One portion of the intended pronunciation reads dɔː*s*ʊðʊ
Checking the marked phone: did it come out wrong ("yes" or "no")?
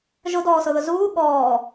no